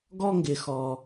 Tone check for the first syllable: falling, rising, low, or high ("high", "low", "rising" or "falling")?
high